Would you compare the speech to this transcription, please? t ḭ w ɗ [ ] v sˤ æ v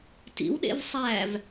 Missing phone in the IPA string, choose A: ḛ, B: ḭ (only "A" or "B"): A